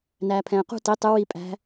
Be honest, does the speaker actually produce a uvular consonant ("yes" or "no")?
yes